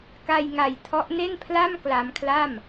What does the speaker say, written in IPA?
k a˧ j ŋ a˨˩ j tʰ ɔ˦˥ ʔ n e˥˩ n pʰ l a˥˩ m k l a˧ m kʰ l a˥˩ m

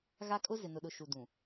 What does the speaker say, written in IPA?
ɣ a˦ kʼ ʊ˦ z ɪ˨ n ʊ˨ ɗ ʊ˨ ʃ u˨ d ũ˨

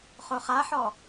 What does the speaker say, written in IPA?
χ o χ a ħ ɔ

